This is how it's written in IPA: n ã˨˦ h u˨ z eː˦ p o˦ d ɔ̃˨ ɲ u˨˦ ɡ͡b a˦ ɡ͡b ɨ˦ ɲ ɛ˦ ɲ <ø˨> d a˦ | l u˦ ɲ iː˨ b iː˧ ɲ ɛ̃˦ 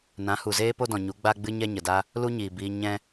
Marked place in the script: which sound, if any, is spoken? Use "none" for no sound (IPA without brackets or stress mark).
ə˨